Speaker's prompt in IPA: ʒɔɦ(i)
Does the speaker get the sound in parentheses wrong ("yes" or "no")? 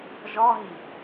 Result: no